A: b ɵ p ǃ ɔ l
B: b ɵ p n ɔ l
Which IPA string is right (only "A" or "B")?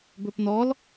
B